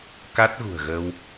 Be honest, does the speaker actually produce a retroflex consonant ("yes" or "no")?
no